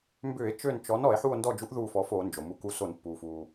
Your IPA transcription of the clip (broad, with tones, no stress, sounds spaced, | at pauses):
m b ʏː˧˩˧ e̯ t͡ʃ ø˦˨ n t͡ʃ ɔ˨˥ n ɔ˧˩˧ e̯ ħ u˦˨ o̯ n d ɔ˦˨ d͡ʒ u˨˥ ʔ ð uː˦˨ f ɔ˨˥ f oː˧˩˧ n d͡ʒ o˩ m u˨˥ k u˨˥ s o˧˩˧ n pː uː˩ f uː˩